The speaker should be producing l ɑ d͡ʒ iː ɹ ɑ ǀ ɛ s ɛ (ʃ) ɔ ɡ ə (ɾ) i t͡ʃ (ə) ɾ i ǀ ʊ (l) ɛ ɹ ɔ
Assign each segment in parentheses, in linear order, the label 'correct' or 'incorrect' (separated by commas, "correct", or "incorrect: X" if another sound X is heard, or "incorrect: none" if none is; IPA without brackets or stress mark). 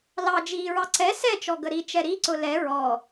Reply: incorrect: t͡ʃ, correct, incorrect: ɛ, correct